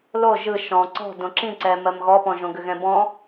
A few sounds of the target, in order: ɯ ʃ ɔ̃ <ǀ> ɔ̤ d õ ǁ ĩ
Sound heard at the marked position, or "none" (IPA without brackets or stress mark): ǀ